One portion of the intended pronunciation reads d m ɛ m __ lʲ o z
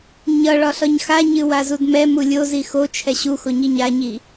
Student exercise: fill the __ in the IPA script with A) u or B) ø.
A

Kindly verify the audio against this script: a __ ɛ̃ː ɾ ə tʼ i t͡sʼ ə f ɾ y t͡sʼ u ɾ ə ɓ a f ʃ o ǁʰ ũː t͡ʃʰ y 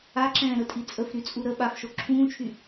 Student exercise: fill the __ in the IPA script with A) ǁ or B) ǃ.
A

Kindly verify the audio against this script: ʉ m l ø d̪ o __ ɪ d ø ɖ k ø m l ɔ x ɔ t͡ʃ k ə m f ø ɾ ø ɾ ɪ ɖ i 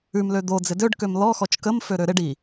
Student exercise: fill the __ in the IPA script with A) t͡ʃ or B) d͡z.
B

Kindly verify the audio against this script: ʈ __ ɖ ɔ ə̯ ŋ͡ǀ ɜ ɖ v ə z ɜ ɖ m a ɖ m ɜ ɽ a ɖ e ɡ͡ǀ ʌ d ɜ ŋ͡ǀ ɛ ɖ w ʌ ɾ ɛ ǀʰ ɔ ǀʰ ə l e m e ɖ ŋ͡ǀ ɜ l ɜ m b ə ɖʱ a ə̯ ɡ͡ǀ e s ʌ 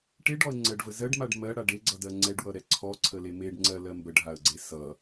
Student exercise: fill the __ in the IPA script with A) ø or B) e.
B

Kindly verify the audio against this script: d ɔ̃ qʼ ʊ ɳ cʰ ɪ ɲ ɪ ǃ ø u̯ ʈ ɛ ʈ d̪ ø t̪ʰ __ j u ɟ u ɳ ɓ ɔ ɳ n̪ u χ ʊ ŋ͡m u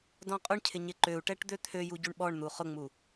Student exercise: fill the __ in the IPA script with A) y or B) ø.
B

